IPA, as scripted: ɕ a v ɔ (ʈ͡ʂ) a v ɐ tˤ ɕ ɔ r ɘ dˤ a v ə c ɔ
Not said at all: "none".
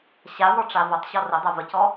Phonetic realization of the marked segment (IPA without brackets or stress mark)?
ʈ͡ʂ